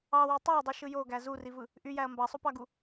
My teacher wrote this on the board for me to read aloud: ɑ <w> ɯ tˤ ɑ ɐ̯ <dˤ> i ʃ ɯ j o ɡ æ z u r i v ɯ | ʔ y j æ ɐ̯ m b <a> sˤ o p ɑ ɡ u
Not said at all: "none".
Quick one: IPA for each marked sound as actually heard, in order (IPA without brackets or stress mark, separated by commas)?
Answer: w, dˤ, ɑ